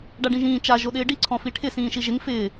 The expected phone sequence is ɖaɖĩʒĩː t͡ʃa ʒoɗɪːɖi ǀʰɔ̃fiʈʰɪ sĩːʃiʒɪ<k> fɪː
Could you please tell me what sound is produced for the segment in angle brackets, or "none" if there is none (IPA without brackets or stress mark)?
ŋ